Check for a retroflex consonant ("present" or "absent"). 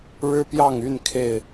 present